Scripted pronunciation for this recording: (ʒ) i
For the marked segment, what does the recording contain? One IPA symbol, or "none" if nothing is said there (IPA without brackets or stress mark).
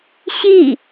ɕ